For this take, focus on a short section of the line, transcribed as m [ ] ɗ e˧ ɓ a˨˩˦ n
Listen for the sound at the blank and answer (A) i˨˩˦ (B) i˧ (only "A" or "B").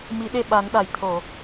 A